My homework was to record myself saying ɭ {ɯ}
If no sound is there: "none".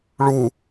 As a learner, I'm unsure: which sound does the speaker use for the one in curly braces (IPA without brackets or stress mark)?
u